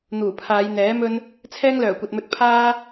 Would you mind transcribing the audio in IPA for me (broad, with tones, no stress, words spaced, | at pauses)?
n̪uː˨˩pʰaː˨˧jn̪ɛː˨˥mɵ˥n | t͡sʰɛː˥ŋlœː˨˩kʷɐ˨t̚mɵ˧t̚ pʰaː˥